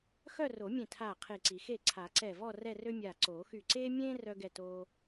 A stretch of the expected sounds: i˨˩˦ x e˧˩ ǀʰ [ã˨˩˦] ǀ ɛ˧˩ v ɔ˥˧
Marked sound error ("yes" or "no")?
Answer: yes